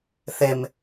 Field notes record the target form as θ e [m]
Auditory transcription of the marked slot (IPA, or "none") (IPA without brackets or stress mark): m